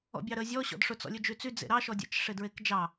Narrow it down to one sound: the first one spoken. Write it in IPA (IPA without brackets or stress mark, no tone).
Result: ɔ̰